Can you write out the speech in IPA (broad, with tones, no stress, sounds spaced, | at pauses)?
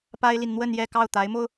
p a˥ ɪ̯ l i˨ n n̪ w ə˥˧ n j ɛ˥˧ k ɑ˥˩ ʊ̯ t̪ a˧˥ ɪ̯ m o˧ ʊ̯